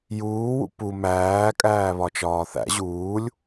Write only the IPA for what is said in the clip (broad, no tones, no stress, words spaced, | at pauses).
juːwṵ pu mæːkʼæːβɒt͡ʃɒː θæ̰ ʑuːlʲ